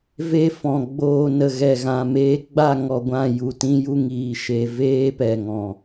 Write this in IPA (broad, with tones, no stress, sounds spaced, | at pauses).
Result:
v e˦ f ɔ̃˨ ɡ͡b oː˧ n ə˨ ɣ ɛ˨ ɣ ã˨ m eː˧ ɡ͡b a˦˨ ŋ ɔ˧ ɡʷ ã˦˨ j u˨ t ĩ˧ j u˧ ŋ iː˨ ʃ e˧ v eː˦ p ɛ˨ ŋ ɔ̃˨